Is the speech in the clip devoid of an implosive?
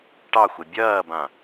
yes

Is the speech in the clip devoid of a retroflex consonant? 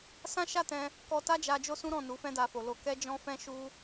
yes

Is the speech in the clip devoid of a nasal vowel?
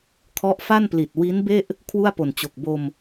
yes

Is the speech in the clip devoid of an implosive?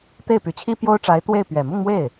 yes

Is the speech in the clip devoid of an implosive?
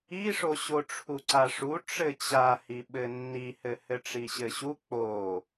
no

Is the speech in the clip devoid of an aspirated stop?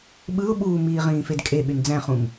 yes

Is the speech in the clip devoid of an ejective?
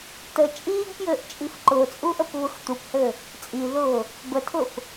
no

